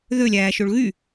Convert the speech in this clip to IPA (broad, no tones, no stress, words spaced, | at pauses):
ðølʲæːʃoɭ ɣy